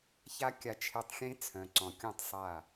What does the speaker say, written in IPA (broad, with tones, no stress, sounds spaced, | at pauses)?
ç a˦ kʲ a˧ t͡ʃʰ e˧ tˤ xʲ ẽ˦ t͡sʰ œ̃˨ ǀ ɔ̃˨ kʲ ũ˦˨ tˤ sˤ a˦˨